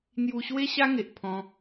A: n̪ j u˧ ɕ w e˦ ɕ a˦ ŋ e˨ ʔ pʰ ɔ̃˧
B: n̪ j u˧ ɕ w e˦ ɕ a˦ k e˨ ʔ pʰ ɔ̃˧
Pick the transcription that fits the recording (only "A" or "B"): A